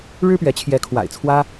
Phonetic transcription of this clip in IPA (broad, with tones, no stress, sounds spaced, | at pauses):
ɻ ɻ̩˥ p ɥ ɛ˧˥ t͡ɕʰ j ɛ˧˥ kʰ w a̰˨˩ ɪ̯ t͡sʰ w ä˥